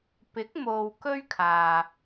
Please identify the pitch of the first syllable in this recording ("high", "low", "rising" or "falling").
rising